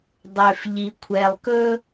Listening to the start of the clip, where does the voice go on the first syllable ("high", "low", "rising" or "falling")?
low